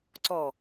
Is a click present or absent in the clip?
present